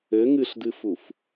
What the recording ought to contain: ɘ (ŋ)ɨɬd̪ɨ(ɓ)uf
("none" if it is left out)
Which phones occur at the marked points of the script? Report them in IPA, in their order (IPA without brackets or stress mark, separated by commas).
ŋ, f